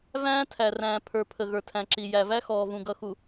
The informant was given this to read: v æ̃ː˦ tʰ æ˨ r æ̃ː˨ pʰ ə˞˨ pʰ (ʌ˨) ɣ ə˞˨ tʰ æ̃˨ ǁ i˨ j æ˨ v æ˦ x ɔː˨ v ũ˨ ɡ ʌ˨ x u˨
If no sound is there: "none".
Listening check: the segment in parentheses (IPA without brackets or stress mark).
ə˨